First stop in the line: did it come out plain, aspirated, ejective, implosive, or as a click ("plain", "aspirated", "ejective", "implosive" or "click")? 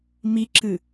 click